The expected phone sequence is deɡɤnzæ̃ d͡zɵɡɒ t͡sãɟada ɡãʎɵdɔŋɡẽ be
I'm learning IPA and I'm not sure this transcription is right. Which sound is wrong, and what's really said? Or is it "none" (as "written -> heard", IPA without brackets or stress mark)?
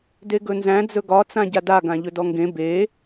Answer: ɤ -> ɵ